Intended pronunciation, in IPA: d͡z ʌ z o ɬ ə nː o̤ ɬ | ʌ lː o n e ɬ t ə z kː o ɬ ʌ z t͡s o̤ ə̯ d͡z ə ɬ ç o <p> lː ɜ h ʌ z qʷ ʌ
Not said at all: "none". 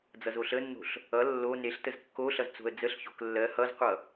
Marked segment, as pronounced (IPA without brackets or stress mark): k